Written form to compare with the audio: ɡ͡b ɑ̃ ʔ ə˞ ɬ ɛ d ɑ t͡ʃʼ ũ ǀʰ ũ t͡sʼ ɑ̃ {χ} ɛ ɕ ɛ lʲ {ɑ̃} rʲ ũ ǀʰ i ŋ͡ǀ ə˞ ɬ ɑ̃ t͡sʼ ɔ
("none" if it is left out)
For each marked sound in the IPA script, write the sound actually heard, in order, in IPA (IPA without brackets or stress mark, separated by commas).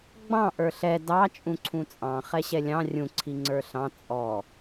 χ, ɑ̃